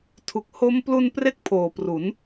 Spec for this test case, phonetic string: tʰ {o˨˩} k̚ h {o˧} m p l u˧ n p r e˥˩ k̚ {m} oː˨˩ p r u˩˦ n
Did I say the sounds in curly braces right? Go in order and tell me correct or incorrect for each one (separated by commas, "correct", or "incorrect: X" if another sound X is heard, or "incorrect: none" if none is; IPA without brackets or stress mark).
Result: incorrect: u˨˩, incorrect: o˦˥, incorrect: pʰ